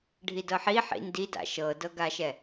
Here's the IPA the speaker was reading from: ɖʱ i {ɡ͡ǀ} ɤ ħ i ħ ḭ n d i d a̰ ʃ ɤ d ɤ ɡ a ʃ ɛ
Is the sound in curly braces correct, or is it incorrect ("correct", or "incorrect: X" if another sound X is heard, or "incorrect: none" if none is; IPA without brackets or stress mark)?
incorrect: d